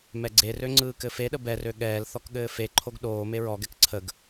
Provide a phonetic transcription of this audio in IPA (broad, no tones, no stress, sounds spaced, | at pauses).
m ɛ ɡ͡ǀ e r ø ŋ͡ǀ ɯː k ɘ f e ɗ ə b ɛ r ø ɠ ɛː l θ ɔ k ɠ ɘː f e ǃʰ o ɡ ɗ oː m e ɹ ɔ ɡ ɛ k ǀʰ ə ɡ